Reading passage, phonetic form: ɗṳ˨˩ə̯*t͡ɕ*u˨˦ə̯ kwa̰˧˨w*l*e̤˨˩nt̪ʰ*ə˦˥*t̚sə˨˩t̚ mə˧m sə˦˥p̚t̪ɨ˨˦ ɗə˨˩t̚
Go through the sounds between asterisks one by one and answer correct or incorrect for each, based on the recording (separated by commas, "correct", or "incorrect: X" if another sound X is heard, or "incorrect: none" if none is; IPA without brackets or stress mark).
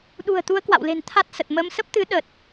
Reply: incorrect: t̪, correct, incorrect: a˦˥